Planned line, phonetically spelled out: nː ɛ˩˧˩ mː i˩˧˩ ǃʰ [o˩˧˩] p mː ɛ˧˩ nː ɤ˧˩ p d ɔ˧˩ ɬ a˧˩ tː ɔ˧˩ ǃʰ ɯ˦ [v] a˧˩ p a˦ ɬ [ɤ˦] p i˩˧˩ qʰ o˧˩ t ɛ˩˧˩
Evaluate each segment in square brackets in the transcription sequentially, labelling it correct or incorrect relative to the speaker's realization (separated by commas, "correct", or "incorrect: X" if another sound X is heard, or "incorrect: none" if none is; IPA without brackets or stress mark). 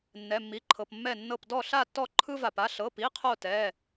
incorrect: ɤ˩˧˩, correct, incorrect: ɤ˩˧˩